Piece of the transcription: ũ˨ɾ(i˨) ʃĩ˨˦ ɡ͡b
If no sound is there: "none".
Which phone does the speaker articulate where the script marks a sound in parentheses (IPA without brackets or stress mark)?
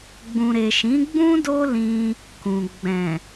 e˨